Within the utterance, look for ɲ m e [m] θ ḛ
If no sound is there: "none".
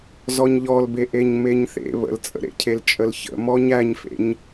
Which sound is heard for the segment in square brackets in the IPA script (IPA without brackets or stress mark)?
ɲ